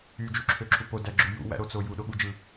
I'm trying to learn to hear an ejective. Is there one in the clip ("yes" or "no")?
no